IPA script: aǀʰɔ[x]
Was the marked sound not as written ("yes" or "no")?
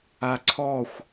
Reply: yes